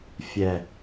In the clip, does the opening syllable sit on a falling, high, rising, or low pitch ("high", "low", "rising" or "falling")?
low